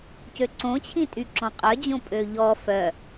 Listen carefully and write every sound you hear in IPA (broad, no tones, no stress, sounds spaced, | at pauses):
c ø ǀ õ t͡ɕʰ ĩ tʼ y ǁ ɔ̃ qʼ œ d͡ʑ õ pʼ ø ʎ ɔ f œ